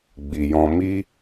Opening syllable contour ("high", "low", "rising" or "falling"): low